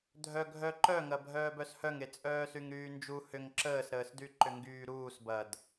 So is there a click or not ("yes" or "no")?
yes